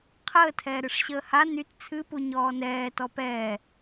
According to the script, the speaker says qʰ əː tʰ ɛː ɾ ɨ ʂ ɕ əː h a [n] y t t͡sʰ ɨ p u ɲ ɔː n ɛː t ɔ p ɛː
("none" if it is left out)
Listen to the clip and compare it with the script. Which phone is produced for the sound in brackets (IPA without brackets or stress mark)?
n